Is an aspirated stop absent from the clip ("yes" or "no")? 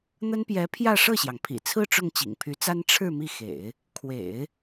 no